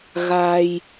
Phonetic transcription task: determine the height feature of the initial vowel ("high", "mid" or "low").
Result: low